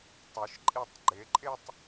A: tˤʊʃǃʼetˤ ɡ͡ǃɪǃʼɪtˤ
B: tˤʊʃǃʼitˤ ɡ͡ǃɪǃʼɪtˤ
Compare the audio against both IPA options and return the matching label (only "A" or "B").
B